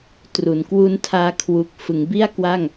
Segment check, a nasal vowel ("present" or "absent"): absent